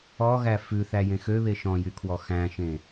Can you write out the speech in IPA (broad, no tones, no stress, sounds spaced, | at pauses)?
ɔ ɣ æ f ʉ θ æ j ẽ x ø β e ʃ ɔ̃ j y kʰ w ɔ x æ̃ ʃ ẽ